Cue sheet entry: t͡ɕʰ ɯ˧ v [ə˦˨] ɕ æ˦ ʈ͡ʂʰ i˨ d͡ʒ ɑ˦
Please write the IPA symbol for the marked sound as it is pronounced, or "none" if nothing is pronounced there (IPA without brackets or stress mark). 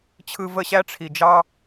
ə˦˨